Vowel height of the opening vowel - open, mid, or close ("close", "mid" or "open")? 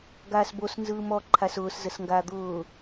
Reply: open